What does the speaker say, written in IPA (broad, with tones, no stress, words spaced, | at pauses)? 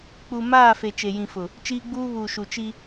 k͡pu˨ maː˦˨fe˨ t͡ʃe˨jĩ˨fʊ˨ | t͡ʃiː˦ɡ͡buː˦ βuː˨ ʃu˨t͡ʃi˦